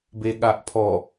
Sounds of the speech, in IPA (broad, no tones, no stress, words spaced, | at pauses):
beɠaʔpʰɔ